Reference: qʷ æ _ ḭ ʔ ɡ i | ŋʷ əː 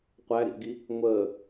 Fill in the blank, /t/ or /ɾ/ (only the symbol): ɾ